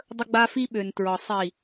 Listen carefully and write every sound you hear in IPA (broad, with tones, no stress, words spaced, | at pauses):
dˤə˧ɡ͡ba˧fi˧ ɓø˨ntɹɒ˨ sˤi˨